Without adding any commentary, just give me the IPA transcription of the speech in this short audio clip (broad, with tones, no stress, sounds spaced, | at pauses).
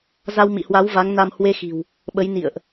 z a˧ w m ḭ˧˨ h w a˨˦ w v a˨˦ ŋ n a˧ m h w e˧ x i̤˨˩ w | ɓ ə˨˦ j n ḭ˧˨ ə̯ ʔ